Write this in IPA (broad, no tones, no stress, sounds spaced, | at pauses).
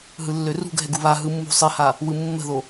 ɦ ɯ lː ø r ṳ ɡ ɦ ɛ ɡ u β a ɦ ɯ mː ṳ sˤ ɪ h a | w ɯ mː ə̤ ð o